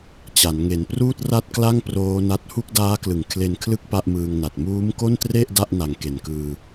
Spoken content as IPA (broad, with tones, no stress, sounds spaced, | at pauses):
t͡ɕ a˩˦ n ŋ e˩˦ n p r uː˥˩ t̚ r a˥˩ t̚ k l a˥˩ ŋ p r oː˦˥ n a˦˥ t̚ h u˥˩ k̚ d aː˦˥ k l ɯ˩˦ ŋ kʰ l e˧ n kʰ l ɯ˥˩ k̚ p a˥˩ ʔ m ɯː˧ ŋ n a˨˩ t̚ m uː˦˥ m k o˥˩ n t r e˥˩ ʔ d a˥˩ ʔ n a˩˦ ŋ k e˨˩ n k ɯː˧